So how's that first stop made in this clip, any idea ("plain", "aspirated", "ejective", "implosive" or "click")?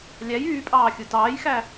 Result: ejective